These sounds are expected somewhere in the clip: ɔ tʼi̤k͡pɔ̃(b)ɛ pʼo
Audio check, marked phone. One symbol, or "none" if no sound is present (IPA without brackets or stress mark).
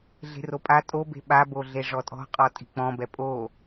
b